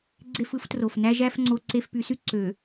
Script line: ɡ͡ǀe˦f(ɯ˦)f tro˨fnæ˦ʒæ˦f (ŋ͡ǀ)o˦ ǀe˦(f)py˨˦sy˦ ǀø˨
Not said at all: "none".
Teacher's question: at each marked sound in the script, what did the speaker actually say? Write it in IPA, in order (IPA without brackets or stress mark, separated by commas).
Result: ɯ˦, ŋ͡ǀ, f